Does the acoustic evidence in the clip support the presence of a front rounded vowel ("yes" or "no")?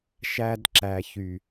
yes